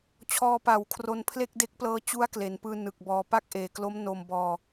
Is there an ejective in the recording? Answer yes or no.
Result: no